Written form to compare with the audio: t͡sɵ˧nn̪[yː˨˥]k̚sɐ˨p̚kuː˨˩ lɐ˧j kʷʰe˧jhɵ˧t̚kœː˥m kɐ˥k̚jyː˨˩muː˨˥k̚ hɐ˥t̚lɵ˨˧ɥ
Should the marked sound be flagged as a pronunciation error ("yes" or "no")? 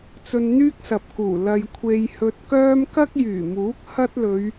yes